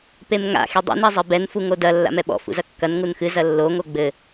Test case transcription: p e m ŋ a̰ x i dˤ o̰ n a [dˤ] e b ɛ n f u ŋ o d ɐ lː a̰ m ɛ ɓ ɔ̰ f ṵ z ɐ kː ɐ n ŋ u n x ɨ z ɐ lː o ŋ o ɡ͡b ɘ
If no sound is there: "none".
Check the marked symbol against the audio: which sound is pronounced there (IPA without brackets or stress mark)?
zˤ